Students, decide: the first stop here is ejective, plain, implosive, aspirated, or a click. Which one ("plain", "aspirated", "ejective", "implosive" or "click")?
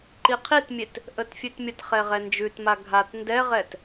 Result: click